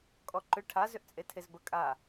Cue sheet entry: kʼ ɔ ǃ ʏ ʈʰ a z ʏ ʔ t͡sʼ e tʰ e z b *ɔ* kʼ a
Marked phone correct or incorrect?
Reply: incorrect